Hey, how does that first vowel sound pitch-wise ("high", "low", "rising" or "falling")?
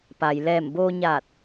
low